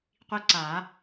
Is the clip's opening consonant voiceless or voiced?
voiceless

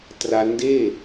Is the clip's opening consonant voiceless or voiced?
voiceless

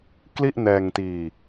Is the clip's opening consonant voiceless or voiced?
voiceless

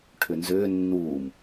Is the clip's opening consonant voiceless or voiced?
voiceless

